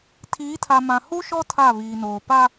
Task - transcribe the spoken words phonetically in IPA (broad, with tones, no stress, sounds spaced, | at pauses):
tʰ iː˨˦ tʰ a˨ m ã˨ h u˦ ʃ ɔ˦ tʰ a˦˨ β iː˨ n oː˨ p a˦